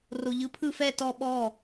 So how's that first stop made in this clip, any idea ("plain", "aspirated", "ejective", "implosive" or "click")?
aspirated